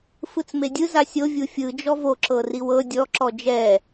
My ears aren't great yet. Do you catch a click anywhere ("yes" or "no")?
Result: yes